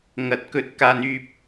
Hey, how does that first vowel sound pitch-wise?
low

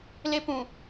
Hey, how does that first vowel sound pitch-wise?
high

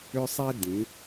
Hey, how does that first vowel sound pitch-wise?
high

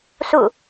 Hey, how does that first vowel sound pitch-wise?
falling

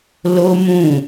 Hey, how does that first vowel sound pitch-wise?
high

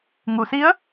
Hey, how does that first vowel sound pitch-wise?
low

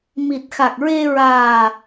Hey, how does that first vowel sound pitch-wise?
low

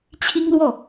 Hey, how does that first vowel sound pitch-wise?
high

